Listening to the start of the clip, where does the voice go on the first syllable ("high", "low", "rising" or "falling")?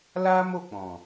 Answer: high